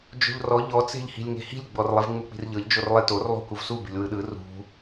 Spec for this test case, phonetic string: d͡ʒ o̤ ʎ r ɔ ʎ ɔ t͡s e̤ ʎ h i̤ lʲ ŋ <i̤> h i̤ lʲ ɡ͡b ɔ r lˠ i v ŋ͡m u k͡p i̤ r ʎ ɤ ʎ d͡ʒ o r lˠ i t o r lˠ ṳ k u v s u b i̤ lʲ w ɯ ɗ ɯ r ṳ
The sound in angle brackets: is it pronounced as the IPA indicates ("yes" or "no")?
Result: no